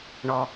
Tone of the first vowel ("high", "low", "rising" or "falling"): low